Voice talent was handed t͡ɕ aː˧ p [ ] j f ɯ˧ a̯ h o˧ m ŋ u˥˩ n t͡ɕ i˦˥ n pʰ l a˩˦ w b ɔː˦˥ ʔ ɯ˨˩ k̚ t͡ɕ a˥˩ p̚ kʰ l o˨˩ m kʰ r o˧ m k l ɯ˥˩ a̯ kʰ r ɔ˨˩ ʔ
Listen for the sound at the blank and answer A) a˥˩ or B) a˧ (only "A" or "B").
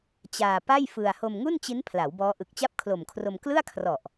A